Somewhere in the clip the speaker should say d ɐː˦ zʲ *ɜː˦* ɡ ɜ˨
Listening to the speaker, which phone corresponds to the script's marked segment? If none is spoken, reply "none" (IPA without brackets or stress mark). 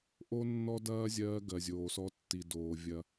ɜː˦